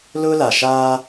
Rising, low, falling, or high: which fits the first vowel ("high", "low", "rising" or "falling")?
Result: high